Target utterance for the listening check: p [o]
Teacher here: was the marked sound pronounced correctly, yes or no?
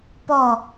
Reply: no